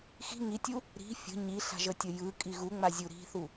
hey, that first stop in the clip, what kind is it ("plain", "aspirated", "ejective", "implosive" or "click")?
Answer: plain